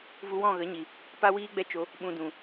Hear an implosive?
yes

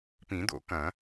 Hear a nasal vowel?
yes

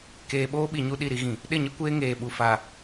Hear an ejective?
no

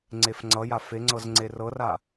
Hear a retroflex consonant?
no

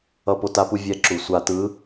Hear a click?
yes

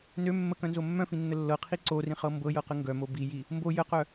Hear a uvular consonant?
yes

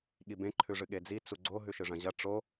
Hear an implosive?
yes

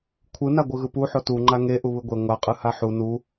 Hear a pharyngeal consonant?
yes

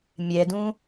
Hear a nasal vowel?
yes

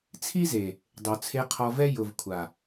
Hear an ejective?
no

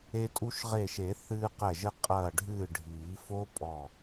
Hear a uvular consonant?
yes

